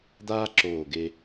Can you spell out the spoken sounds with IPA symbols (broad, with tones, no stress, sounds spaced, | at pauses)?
d̪ aː˥ ǁ oː˧˩ ɡ e˧